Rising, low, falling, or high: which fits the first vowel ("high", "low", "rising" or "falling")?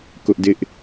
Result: high